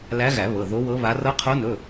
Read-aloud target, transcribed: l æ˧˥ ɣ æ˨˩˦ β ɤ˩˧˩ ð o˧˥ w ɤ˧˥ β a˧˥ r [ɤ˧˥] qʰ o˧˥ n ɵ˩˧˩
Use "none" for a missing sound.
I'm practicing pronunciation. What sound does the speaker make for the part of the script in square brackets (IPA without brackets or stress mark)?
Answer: ɤ˧˥